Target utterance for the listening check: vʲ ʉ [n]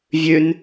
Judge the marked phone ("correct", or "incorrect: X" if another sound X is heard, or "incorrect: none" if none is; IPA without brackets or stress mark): correct